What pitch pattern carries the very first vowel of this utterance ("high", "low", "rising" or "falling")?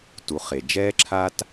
rising